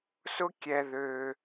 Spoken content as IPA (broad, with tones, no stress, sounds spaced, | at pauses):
s ʊ˦ kʲ ɛ˧ ð ø˧